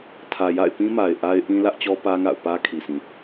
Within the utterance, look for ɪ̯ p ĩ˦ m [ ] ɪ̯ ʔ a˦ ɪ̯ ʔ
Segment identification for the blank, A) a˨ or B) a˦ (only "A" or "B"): A